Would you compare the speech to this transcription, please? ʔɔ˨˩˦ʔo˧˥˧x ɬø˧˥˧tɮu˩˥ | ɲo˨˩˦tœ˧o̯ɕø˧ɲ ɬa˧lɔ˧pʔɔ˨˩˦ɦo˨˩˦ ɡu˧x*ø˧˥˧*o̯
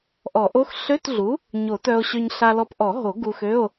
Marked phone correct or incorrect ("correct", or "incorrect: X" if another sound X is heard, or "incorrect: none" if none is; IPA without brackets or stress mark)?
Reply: correct